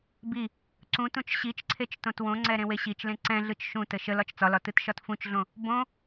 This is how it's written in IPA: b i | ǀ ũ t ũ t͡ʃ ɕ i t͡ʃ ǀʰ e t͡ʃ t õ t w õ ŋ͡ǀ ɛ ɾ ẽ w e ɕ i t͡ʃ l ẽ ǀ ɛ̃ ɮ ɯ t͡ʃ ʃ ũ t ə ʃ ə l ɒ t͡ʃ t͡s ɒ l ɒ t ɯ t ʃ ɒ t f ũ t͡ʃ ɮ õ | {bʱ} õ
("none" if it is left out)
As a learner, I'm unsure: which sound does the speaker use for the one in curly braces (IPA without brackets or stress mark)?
b